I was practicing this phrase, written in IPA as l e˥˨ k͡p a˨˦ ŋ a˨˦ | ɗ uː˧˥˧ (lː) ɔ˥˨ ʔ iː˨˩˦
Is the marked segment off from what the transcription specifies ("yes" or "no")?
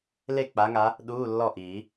no